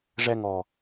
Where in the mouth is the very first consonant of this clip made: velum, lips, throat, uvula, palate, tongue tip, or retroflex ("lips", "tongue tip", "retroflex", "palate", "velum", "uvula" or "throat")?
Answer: retroflex